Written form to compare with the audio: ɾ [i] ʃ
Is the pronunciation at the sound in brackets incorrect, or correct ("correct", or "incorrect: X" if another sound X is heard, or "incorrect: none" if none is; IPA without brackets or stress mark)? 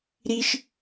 correct